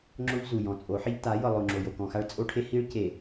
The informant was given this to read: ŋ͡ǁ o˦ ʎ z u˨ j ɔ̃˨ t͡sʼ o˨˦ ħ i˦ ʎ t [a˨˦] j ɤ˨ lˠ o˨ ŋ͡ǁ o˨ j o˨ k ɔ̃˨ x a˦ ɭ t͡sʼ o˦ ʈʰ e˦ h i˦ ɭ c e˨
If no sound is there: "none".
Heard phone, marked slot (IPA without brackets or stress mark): a˨˦